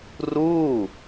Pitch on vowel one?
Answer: falling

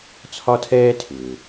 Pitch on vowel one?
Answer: high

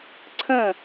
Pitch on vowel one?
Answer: falling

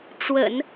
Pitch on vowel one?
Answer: low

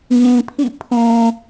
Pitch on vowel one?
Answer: low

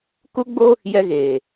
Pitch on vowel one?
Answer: high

